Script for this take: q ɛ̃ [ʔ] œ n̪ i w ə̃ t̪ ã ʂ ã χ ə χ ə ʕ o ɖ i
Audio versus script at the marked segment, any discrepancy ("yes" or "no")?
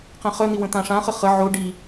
yes